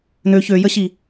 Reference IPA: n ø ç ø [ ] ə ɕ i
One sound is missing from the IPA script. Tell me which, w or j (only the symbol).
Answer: j